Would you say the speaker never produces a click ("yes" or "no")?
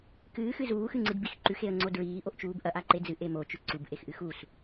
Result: no